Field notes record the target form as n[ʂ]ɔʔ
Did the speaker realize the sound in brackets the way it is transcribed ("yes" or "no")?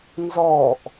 no